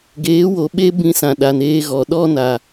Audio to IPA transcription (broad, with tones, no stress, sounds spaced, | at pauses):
ɡ eː˨˦ w o˨ ɓ e˦ b ĩ˧ s ã˨ ɗ a˨ n eː˧ ɣ ɔ˨ ɗ ɔ˦ n a˨